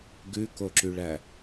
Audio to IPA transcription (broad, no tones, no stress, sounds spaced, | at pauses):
ɡ ʉ k o ǁ y ɭ æ